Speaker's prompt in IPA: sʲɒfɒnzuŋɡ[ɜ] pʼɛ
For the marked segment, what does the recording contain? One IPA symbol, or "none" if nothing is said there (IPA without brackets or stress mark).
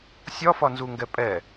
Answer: ɛ